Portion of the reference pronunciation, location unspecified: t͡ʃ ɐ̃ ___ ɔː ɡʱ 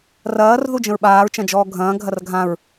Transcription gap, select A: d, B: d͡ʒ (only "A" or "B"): B